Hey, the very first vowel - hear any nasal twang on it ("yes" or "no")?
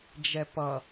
no